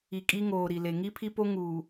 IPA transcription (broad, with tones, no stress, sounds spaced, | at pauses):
i˨ kʼ i˦ ŋ oː˨ ɾ i˨ l e˨ ŋ i˦ pʰ i˦ p o˦ ŋ uː˨